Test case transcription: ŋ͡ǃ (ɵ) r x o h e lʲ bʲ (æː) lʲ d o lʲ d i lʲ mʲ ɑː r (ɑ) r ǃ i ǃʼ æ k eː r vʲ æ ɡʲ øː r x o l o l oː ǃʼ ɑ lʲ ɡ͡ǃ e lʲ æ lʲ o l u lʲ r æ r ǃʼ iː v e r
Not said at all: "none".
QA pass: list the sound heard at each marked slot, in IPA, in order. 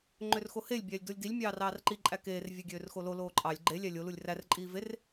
ø, æː, ɑː

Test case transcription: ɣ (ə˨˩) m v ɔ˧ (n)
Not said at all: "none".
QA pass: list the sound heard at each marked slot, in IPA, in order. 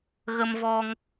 ə˧, ŋ

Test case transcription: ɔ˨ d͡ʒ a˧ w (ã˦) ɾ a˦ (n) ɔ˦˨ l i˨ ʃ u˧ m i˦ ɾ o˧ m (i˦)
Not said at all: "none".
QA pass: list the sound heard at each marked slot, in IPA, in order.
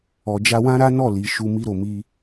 ã˦, n, i˦

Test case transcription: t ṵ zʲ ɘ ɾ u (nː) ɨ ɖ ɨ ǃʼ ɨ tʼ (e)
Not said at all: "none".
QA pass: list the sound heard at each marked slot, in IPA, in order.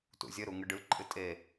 ŋ, e

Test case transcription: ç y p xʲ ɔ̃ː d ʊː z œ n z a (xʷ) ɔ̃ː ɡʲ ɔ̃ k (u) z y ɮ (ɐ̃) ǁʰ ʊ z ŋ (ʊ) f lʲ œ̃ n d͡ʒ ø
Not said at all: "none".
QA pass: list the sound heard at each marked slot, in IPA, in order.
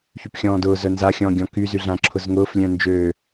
xʲ, y, ã, ʊː

